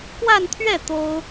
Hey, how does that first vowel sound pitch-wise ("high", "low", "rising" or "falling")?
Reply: falling